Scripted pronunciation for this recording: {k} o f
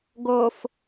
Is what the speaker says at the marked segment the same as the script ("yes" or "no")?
no